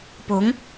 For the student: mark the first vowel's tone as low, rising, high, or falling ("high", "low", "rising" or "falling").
rising